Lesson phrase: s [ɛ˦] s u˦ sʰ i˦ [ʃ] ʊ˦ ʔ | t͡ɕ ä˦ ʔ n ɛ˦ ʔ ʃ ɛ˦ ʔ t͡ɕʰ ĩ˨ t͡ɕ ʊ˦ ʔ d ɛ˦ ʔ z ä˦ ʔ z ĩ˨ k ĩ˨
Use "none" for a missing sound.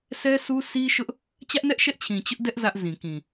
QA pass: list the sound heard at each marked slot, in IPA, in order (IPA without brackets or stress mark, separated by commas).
ɛ˦, ʃ